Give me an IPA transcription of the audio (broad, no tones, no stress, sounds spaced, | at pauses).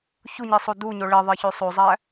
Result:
ç u ɲ i sˤ o d u ɲ o ɭ e ðˤ e ç ø sˤ o zˤ æ